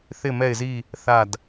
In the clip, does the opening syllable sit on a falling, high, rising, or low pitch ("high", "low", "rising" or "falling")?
falling